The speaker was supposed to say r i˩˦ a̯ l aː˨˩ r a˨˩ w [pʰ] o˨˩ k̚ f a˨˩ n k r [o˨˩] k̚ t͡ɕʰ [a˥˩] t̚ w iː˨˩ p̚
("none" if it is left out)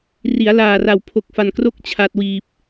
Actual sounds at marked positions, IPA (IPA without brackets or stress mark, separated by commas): pʰ, o˦˥, a˨˩